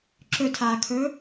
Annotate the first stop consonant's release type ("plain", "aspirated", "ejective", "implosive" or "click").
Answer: click